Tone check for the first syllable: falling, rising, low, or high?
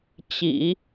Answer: low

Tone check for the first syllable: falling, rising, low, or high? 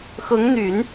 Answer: rising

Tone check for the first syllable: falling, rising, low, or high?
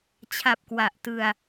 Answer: low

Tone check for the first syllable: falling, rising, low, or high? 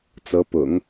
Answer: rising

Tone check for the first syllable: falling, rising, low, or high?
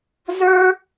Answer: high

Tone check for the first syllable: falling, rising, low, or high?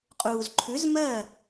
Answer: low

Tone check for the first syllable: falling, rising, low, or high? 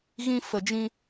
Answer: high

